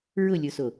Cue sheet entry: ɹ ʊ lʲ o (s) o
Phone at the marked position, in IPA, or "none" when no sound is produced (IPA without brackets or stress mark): s